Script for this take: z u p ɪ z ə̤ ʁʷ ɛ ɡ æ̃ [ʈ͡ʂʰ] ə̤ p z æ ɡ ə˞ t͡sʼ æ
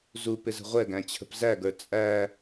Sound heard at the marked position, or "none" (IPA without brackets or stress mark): t͡ɕʰ